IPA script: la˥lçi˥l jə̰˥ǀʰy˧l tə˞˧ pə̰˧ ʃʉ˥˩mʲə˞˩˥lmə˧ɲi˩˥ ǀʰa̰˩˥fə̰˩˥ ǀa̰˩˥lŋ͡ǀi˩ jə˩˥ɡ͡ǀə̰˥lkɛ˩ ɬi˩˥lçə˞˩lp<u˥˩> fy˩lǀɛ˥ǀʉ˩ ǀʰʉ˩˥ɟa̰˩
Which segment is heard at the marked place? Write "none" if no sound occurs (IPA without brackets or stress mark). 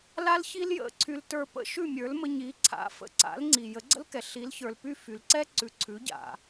y˥˩